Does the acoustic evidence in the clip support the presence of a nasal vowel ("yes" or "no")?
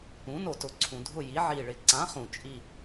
yes